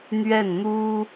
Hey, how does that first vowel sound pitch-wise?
falling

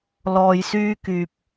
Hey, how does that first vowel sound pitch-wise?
low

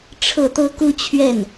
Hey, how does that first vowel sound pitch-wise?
falling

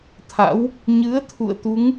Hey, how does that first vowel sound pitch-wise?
rising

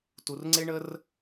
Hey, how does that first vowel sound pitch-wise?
low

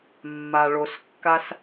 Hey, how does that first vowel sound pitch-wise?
low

